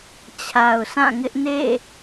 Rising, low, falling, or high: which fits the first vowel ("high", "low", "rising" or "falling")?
low